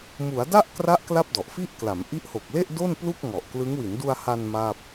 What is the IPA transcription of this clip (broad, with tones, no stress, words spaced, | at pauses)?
mu˩˦a̯da˥˩ʔkra˦˥ʔ kla˥˩p̚dɔ˨˩ʔfi˥˩ʔ kla˩˦mʔi˦˥ʔho˨˩k̚le˥˩ʔ do˥˩nplu˥˩k̚ŋɔ˨˩ʔklɯ˦˥ŋ wi˩˦ndu˧a̯ha˧n ma˥˩p̚